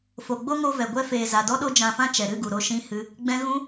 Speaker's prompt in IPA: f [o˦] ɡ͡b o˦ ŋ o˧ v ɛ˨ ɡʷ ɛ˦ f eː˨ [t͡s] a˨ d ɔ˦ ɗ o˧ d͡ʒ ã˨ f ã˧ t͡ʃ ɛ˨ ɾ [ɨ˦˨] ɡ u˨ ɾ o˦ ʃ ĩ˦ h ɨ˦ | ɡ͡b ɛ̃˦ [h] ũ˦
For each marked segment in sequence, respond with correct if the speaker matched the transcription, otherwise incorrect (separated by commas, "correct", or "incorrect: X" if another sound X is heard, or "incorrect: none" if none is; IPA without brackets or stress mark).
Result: incorrect: o˨, incorrect: z, correct, incorrect: ɣ